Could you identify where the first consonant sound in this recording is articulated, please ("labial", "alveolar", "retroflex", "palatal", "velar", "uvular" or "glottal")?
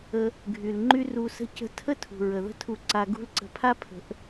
velar